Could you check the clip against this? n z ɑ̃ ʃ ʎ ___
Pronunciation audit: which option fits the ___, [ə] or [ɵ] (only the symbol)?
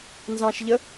ə